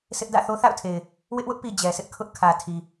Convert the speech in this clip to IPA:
sʰ ɪ˦ ʔ d ä̰˦˨ θ o˦ θ a̰˦˨ ʊ̯ tʰ e˨ ɪ̯ | w ɪ˦ ʔ w ʊ˦ ʔ p i˨ d͡ʑ ɛ˨ sʰ ɪ˦ ʔ kʰ ʊ˦ ʔ kʰ ä˨ tʰ i˨

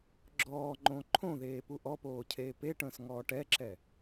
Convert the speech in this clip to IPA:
ɡ͡ǁ ɔː ŋ͡ǃ õ ǃʰ õ ð eː p u ʔ ɔ p oː cʰ eː p e ʈ ə̃ː s ŋ ɔː ʈ ɛ ǁ ɛ

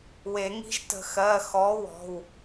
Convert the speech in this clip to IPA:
w e˨˩˦ ŋ i̤˦˥ ʒ t ə̤˨˩˦ x ɜ˩˧˩ x ɔ˨˥ w ɔ̤˩˧˩ w

